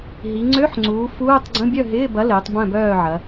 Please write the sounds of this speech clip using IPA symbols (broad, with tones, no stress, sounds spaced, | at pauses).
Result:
ɦ i˩˧ ŋ͡ǀ ø˧˥˧ ħ ŋ͡ǀ uː˩˧ f uː˧˥˧ tˤ ɡ͡ǀ ə̃˧˥˧ bʲ œ˥˨ ɦ ɪː˧˥˧ b ɐ˨˥ l ɪː˩˧ tˤ b œ̃˥˨ b œː˥˨ ʕ ɐ˩˧